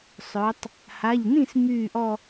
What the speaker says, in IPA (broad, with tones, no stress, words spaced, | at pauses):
sˤœ˩˧tˤ | ha˩˧˩ʎnĩ˥˩s myː˥˩ʔɔ˥˧